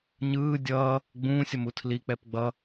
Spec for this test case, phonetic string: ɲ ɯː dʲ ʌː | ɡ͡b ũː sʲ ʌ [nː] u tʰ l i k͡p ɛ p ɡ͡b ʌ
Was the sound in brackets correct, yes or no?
no